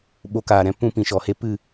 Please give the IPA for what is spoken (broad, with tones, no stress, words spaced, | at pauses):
ɓo˧kaː˨ɾɛ̃˨˦ pũ˦pĩ˨ʃɔ˨he˦ pɨ˦˨